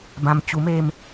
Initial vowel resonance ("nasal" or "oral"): nasal